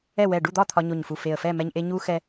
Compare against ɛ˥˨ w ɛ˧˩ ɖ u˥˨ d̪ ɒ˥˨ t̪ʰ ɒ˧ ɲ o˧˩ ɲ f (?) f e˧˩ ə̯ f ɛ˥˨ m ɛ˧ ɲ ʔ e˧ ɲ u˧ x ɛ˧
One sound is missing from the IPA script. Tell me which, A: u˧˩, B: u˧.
A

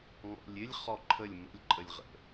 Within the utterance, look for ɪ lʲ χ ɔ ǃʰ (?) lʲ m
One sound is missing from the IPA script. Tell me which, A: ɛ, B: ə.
B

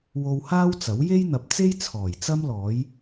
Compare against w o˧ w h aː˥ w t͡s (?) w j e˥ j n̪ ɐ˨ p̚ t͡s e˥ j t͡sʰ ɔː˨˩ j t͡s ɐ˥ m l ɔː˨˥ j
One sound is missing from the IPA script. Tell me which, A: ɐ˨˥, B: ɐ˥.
A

